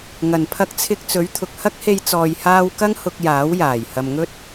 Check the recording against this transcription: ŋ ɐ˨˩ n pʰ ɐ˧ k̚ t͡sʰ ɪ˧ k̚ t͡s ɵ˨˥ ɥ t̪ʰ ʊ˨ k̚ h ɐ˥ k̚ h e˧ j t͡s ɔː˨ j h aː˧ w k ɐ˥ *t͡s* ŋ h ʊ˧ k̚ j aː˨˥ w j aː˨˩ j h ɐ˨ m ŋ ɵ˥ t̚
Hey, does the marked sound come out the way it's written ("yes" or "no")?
no